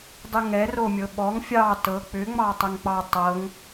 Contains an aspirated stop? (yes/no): no